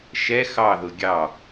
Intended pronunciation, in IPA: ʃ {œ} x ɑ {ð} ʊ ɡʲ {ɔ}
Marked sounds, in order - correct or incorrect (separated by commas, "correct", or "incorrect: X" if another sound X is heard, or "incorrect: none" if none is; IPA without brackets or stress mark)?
incorrect: ɛ, correct, incorrect: ɑ